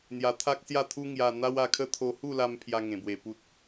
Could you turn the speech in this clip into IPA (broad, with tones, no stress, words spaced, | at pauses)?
n̪ja˧t̪ʰa˦k̚sja˥˧t̪ʰu˦ ŋja˧ n̪a˦wa˧kʰə˦ t̪ʰo˧hu˥˧la˧m pʰja˧ŋẽ˨˩bwe˨˩ pu˨t̚